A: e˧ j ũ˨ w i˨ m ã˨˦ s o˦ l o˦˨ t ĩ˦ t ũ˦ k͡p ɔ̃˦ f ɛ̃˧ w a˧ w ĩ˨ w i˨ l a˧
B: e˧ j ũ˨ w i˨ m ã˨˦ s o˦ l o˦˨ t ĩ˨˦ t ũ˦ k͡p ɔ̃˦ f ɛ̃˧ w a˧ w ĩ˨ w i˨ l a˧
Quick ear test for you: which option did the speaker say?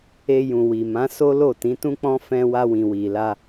B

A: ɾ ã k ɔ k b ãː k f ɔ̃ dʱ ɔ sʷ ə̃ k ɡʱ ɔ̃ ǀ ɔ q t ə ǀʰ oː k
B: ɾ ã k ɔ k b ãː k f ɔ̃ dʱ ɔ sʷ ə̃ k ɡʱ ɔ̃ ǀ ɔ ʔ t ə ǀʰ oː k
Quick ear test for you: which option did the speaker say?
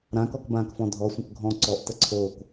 B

